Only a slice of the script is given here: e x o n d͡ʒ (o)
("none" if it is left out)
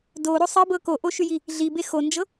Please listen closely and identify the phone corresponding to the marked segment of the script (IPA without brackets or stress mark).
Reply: ɤ